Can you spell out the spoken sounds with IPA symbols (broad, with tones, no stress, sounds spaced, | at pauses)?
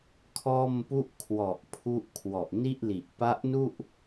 kʰ ɔː˥˩ m p u˥˩ ʔ kʰ w ɔ˨˩ ʔ pʰ u˥˩ ʔ kʰ w ɔ˨˩ ʔ n i˥˩ ʔ l i˨˩ ʔ p a˦˥ ʔ n u˥˩ ʔ